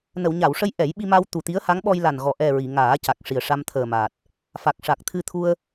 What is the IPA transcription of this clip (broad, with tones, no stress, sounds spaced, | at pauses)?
n ə˨˩˨ w ɲ a˨˩˨ w ʂ ə˧ j ʔ ɛ˨˩˦ j ɓ i˧ m a˧ w t̪ u˨˩ t̪ i˧˥ ə̯ h a˧˥ ŋ ɓ ɔ˧ j l a˨˩ n ɣ ɔ˨˩ ʔ ɛ˨˩ ɹ i˨˩˨ ŋ aː˨˩˦ c a˨˩ k̚ ʂ i˨˩ ə̯ ʂ a˧ m t̪ʰ əː˨˩ m aː˨˩ t̚ | f a˨˩ k̚ ʂ a˨˩ k̚ t̪ʰ ɨ˧ t̪ʰ u˧ ə̯